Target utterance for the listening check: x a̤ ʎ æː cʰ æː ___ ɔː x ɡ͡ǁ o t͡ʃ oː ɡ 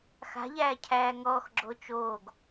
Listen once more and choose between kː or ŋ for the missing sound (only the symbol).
ŋ